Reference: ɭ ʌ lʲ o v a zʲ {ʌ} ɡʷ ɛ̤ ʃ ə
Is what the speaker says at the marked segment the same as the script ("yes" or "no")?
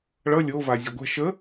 no